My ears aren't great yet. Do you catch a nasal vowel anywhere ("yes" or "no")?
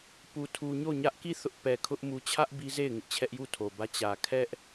no